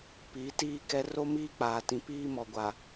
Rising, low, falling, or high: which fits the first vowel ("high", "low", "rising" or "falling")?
rising